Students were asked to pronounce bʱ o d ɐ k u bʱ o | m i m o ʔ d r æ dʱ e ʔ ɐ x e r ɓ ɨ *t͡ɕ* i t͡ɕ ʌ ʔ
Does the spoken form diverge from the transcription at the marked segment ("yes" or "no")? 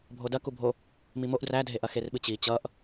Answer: no